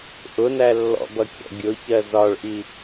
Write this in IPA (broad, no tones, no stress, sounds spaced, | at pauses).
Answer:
ʔ ʊ n æ lː ɔ̰ b ʌ kʲ ɔ̰ ɡʲ ʊ ç ɜ z ɒ ɭ ʔ i